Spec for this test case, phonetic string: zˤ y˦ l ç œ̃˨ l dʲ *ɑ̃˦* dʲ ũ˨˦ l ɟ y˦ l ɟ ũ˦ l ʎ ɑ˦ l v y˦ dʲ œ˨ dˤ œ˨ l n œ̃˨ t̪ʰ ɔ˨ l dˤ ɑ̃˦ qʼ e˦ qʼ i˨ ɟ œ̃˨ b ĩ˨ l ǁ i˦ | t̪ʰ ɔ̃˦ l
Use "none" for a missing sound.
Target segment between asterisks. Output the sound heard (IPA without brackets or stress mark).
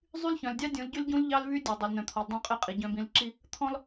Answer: ɑ˦